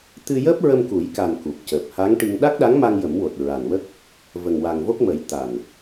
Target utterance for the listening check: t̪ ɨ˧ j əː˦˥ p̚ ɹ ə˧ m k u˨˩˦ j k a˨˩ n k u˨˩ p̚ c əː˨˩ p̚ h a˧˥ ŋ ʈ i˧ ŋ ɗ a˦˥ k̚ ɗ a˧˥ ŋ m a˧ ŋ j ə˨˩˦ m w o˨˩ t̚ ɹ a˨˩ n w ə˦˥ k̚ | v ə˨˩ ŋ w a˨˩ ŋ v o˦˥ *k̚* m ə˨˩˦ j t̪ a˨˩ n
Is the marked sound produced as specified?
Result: yes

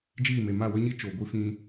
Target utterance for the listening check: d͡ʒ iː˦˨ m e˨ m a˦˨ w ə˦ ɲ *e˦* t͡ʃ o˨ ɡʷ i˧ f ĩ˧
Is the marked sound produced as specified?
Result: no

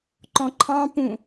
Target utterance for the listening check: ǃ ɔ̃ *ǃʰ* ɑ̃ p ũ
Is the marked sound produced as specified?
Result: yes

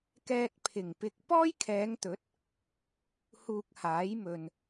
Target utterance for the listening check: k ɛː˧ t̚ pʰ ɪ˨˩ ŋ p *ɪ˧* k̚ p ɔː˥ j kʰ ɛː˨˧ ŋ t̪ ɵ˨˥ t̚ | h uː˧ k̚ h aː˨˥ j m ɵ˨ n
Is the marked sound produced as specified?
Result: yes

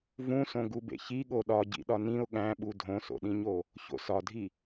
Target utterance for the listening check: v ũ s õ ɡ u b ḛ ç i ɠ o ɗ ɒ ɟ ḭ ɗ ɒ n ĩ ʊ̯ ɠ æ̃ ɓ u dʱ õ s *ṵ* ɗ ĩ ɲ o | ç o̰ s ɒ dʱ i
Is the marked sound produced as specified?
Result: no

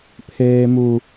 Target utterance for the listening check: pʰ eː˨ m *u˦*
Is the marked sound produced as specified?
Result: no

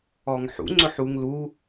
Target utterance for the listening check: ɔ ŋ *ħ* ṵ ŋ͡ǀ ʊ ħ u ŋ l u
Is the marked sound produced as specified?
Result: yes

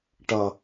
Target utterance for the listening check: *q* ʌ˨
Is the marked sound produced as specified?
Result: no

